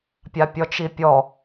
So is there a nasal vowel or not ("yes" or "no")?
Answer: no